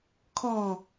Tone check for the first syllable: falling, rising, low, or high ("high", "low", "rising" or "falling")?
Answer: falling